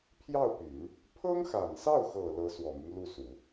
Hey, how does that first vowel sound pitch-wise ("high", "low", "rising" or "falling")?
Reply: falling